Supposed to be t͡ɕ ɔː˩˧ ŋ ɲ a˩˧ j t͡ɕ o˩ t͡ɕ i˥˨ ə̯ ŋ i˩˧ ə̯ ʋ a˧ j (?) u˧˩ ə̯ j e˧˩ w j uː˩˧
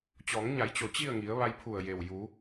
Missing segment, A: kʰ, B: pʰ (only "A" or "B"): B